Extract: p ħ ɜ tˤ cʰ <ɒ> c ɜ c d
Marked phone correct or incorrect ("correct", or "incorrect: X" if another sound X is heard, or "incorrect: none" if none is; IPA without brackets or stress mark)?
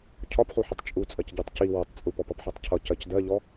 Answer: incorrect: ʌ